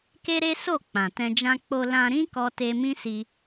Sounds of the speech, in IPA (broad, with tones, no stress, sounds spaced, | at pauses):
k e˦ ɾ e˦ s o˦˨ k͡p ã˨ t ɛ̃˧ d͡ʒ ã˦ k͡p o˧ l ã˧ ɾ ĩ˦ k ɔ˧ t e˧ m ĩ˦ s i˧